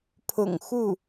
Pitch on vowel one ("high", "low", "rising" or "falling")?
low